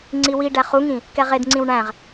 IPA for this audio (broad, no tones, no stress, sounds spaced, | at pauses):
ŋ͡ǀ i w i ɖ æ χ u ŋ ĩ | k ɛ ʁ e d ŋ͡ǀ ĩ w ɳ æ̃ ʁ